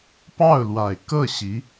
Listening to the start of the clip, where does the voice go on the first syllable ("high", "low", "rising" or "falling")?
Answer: falling